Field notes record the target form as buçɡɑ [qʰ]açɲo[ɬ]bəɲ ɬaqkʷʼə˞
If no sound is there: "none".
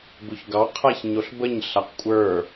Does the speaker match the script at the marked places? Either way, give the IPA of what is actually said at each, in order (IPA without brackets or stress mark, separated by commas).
qʰ, ɬ